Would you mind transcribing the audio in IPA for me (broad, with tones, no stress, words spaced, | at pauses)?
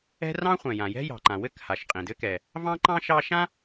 ɛ̤˥ rɑ̃˥χʷɛ̃˩jã˩ jɛ̤˥jɑ̤˩ǃã˩ wɘ˥kha˩ʃ qʼĩ˩dɘ˥kɛ˩ | vɑ̃˥ǃɑ̃˥ ʃɑ˥ ʃã˥